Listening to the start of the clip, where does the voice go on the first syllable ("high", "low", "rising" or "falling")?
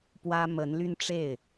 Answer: high